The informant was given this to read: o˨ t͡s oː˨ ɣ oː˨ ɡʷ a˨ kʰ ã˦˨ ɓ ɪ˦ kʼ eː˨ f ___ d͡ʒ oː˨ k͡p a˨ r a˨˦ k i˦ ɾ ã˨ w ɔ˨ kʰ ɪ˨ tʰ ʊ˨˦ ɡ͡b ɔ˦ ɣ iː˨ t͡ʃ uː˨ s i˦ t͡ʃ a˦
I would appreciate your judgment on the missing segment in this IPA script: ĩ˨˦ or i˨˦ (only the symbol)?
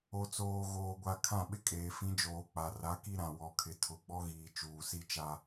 ĩ˨˦